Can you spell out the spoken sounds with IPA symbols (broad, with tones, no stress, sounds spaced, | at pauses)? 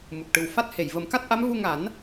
m u˨˩ k̚ ʈ ɨ˨˩ w f a˦˥ t̚ h e˨˩˨ j v ə˨˩˦ m k a˦˥ t̚ ʔ a˧˥ m v u˧ ŋ a˨˩˦ n